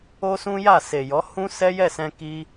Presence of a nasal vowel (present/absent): present